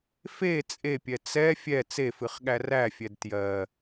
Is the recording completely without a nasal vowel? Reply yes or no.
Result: yes